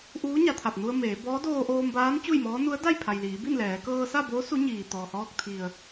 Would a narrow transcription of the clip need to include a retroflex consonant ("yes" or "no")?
no